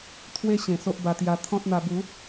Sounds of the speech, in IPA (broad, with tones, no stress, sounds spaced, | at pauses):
t̪ʰ w e˦ ɕ ẽ˨˩ s o˦ ʔ b a˧ t̪ j a˧ t̪ʰ ɔ̃˦ t̚ n̪ a˧ b u˨˦